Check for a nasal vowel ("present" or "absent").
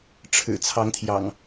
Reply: absent